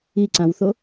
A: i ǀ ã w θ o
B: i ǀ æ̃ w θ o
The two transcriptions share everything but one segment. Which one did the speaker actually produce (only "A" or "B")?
A